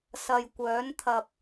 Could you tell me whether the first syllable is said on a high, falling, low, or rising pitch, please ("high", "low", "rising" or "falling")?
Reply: low